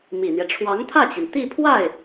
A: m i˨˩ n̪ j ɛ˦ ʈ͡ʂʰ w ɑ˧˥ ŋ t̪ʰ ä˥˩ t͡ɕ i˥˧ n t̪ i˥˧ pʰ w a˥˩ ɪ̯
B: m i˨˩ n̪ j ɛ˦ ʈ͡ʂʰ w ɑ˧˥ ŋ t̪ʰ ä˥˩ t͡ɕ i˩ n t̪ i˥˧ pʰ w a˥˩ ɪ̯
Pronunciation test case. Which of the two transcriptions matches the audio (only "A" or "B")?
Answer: B